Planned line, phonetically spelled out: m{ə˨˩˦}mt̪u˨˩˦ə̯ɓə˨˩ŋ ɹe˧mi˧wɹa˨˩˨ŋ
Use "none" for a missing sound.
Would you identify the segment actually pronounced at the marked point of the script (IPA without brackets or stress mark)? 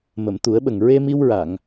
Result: ə˨˩˨